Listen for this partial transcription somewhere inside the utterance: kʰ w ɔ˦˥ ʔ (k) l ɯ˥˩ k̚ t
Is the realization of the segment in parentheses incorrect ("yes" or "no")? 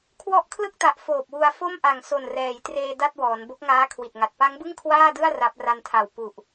yes